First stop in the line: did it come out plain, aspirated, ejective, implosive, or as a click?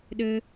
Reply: implosive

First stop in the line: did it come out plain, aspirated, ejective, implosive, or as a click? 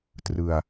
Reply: plain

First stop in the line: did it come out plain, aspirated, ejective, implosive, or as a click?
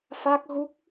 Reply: plain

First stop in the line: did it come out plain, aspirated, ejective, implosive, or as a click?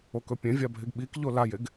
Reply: plain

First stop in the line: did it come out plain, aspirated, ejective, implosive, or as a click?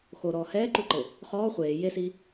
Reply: click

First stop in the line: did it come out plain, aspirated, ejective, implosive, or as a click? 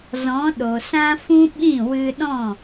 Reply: implosive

